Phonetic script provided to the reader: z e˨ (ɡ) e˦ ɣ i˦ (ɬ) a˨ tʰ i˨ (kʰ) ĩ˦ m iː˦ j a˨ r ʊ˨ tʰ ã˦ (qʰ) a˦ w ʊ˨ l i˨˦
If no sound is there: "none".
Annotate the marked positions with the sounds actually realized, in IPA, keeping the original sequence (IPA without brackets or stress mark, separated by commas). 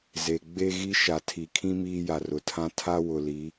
ɡ͡b, ʃ, kʰ, tʰ